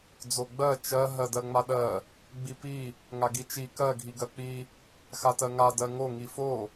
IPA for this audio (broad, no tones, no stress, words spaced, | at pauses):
d͡zoɡ͡bɜ t͡ʃɜ ɦɜdɜŋ͡maɗɜ | ɡ͡bipi | ŋaɡit͡ʃi kɜ ɡʱiɡɜk͡pi | xatɜŋa dɜŋo ŋifo